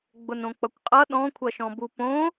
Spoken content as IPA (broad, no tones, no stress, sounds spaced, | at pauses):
ɡ͡b ʊ n õ k͡p ʌ kʷ qʼ ʌ ɗ ɔ̃ kʷʰ ʌ ʃ ɔ̃ b u p õ